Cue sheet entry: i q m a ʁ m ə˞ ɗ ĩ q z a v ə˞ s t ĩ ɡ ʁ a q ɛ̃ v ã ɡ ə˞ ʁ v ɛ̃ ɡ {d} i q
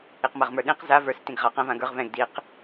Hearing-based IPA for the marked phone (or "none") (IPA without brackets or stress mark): d